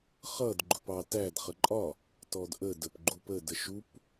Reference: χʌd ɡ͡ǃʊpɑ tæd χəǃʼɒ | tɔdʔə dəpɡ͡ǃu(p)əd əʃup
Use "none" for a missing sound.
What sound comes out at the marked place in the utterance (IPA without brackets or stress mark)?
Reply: p